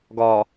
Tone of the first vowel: low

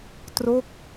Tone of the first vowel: falling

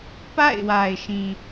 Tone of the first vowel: falling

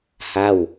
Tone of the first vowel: falling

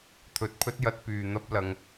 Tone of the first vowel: low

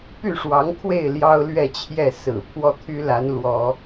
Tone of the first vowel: falling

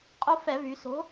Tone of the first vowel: high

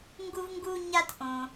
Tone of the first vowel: high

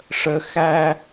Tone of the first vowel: low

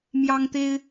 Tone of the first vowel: high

